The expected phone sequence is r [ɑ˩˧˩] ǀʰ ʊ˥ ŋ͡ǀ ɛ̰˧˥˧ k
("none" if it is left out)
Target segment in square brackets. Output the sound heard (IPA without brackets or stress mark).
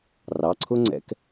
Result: ɑ˩˧˩